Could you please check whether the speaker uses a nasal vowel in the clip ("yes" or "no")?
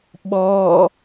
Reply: no